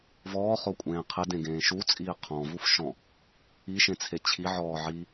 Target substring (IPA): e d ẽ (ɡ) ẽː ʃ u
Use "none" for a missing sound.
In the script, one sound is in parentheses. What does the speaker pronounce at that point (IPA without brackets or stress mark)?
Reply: ɡ